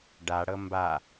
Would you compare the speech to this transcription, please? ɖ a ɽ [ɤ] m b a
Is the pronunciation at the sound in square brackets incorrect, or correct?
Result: correct